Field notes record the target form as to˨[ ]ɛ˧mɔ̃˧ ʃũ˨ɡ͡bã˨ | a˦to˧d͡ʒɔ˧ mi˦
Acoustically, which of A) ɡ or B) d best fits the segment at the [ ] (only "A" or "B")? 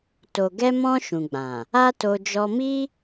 A